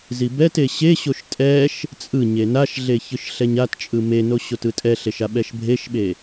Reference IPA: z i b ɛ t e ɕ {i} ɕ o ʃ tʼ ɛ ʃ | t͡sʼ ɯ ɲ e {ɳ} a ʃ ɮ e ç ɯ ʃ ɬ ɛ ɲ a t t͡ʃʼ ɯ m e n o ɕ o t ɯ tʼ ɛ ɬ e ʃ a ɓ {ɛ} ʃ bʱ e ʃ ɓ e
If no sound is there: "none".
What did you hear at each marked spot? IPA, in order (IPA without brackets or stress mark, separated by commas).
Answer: e, n, ɛ